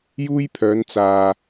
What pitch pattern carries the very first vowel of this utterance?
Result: high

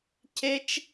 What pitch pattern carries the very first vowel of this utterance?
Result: high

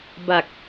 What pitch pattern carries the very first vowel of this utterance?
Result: low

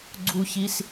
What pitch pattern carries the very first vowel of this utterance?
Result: high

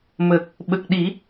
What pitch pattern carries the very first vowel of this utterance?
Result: low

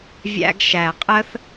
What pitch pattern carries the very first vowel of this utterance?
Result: high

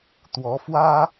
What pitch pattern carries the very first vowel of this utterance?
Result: rising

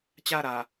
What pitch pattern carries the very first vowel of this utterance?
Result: falling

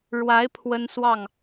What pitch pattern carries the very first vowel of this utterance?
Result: rising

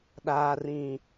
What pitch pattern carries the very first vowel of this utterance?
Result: low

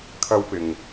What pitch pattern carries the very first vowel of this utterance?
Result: high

